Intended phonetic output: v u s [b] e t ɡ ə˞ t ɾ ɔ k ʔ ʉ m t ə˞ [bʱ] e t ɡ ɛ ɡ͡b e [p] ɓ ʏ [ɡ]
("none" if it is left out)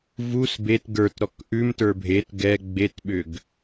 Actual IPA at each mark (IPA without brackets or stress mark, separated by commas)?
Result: b, bʱ, t, ɡ